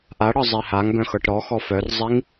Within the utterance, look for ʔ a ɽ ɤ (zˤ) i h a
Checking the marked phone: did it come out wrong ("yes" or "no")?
no